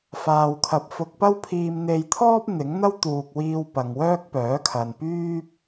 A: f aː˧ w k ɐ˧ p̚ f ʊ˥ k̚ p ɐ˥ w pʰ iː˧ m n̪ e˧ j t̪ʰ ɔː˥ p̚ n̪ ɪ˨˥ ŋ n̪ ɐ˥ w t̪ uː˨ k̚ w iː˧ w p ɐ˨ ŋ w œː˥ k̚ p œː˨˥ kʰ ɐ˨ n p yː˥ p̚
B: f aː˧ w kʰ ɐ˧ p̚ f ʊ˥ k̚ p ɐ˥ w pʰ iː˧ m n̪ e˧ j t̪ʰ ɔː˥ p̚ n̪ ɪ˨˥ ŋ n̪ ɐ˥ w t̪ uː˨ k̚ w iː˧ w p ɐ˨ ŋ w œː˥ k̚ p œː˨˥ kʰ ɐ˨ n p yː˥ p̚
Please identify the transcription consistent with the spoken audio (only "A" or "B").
B